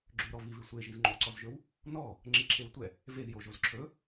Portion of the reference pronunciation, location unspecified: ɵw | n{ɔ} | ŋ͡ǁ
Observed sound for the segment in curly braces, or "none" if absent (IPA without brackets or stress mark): ɔ